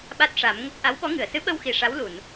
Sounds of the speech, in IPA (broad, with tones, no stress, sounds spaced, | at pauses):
ɓ a˦˥ t̚ ʂ a˨˩˦ m ŋ ə˦˥ k̚ ʔ a˧˥ w ɓ ɔ˧˥ ŋ ɨ˨˩˨ ə̯ s ɨ˧˥ ɓ ə˧ w x i˨˩ ʂ a˧˥ w l u˨˩˨ n